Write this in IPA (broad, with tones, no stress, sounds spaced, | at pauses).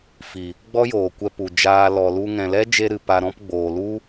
f i˨ | ɡ͡b ɔ˦ j oː˨ kʷ ɛ˧ p u˨ d͡ʒ aː˧ l ɔ˨ l u˧ ŋ ɛ̃˨ l ɛ˦ d͡ʒ e˧ ɾ ɨ˨ p a˧ ɾ ɔ̃˦ p ɡ͡b oː˨ l u˦